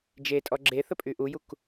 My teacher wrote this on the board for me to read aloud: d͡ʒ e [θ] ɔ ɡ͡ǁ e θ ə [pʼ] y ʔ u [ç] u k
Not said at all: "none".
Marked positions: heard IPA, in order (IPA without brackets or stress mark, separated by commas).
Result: tʼ, pʼ, j